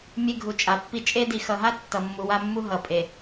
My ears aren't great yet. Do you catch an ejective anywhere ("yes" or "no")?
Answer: yes